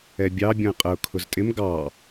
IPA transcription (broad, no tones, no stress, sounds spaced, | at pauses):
ɛ bʲ ɑ bʲ ɔ̃ ɪ̯ qʼ ə ʊ̯ kʰ ʊ z tʼ ɪ m ɡ ɑ